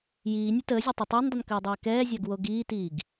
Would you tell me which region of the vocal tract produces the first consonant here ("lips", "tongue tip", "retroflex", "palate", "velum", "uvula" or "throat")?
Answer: palate